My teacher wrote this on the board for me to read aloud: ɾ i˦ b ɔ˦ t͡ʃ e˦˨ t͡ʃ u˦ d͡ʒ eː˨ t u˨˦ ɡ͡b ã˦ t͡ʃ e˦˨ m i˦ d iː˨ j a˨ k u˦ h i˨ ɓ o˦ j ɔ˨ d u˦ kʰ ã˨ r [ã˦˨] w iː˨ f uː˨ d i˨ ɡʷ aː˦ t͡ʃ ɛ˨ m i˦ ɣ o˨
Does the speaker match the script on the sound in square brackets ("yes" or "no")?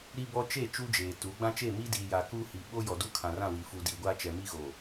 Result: yes